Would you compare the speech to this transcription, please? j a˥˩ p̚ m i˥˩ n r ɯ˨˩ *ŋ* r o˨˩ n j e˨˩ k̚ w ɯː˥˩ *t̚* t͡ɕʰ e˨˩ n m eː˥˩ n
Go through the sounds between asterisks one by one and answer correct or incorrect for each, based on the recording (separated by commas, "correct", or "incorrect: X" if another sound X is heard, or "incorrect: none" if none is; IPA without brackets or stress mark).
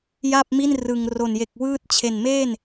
correct, correct